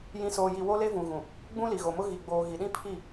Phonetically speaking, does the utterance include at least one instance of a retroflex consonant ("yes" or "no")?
no